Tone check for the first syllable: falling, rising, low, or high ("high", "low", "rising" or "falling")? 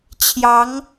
rising